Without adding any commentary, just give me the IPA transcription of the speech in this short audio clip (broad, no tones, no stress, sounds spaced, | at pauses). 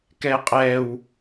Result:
k ɛ qʼ ɛ w